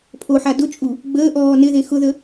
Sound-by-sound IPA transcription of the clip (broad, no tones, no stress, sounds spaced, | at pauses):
pʰ o ħ a d ʊ t͡ʃʼ u | ɡ͡b əː ʔ ɔː n ɪ ð e x ʊ ð ə